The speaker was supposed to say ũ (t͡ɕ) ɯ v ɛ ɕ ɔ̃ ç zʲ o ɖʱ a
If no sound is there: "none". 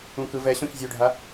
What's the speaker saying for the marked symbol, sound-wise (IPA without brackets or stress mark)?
k